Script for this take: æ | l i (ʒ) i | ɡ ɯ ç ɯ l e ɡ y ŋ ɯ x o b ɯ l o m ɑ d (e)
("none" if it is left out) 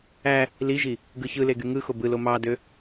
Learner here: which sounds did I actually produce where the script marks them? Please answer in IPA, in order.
ʒ, ø

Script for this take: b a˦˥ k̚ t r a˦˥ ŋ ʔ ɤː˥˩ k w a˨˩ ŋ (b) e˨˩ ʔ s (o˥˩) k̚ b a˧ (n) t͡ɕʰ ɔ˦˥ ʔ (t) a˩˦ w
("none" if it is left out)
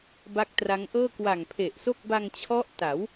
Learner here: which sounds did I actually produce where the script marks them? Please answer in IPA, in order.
pʰ, o˥˩, ŋ, t

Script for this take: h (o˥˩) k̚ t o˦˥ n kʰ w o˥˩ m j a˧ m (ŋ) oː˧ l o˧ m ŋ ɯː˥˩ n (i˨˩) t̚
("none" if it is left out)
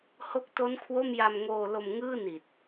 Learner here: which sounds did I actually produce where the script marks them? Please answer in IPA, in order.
o˦˥, ŋ, i˨˩

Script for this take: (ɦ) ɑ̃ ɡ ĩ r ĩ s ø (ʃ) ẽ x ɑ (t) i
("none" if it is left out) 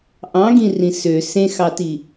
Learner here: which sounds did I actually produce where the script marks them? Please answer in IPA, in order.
ʔ, s, t

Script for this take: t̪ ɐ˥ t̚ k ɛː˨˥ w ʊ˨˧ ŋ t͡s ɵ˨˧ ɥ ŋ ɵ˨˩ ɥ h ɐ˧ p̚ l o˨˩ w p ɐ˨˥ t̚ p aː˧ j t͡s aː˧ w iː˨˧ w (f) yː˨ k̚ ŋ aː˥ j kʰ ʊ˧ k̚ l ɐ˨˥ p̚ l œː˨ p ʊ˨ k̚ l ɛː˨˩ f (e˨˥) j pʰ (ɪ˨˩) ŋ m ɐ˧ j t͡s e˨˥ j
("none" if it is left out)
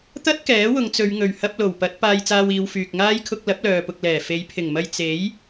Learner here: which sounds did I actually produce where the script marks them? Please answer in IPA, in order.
f, e˨˥, ɪ˨˩

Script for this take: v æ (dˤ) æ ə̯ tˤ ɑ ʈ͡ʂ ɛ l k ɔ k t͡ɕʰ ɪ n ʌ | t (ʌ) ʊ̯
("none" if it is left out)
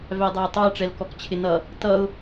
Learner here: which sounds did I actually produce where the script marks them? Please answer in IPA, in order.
dˤ, ʌ

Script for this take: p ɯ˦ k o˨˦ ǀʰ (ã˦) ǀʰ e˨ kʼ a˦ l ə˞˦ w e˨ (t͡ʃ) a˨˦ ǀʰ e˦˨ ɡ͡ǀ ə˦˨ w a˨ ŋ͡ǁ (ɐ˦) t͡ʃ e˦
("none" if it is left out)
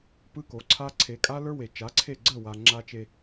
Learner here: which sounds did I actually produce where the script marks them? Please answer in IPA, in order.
a˦, t͡ʃ, a˦

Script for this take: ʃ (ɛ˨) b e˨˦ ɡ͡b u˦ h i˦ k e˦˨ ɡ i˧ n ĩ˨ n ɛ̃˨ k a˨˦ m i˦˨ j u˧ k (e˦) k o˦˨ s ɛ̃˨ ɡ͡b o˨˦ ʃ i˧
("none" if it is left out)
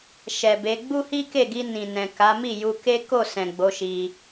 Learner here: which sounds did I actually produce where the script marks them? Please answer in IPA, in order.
ɛ˨, e˦

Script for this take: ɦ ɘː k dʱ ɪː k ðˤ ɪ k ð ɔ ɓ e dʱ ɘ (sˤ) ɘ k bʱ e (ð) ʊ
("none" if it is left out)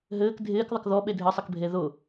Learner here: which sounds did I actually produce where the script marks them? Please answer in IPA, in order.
sˤ, ð

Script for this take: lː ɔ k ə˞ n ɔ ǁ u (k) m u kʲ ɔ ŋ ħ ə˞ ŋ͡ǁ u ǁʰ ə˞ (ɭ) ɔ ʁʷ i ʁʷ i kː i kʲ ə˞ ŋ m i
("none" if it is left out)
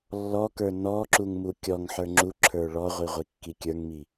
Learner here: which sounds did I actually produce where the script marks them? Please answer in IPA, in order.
ŋ, ɭ

